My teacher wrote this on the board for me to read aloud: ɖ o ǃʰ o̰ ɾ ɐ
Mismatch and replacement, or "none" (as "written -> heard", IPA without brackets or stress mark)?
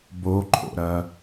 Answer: ɖ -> b